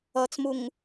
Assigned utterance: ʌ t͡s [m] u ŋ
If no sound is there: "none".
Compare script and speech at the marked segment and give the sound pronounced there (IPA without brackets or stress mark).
m